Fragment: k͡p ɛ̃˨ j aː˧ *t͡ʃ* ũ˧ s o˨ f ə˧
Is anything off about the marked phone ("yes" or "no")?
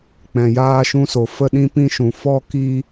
yes